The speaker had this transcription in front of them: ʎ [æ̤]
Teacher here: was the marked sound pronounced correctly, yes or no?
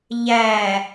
no